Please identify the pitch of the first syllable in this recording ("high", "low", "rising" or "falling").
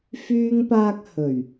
high